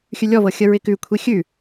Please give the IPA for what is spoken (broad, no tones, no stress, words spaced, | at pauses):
xʲʉlʲɔvɤ xʲəɹɪkʉkʷʰi xʲʉ